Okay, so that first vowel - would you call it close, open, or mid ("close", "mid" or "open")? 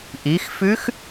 close